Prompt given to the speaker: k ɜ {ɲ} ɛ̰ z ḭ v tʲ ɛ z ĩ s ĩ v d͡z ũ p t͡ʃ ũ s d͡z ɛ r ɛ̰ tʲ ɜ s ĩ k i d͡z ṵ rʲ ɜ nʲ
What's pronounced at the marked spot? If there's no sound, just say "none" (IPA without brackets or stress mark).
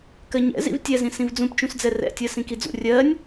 ɲ